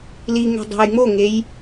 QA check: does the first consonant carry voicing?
yes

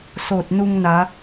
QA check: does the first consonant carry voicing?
no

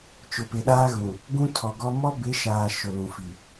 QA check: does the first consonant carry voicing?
no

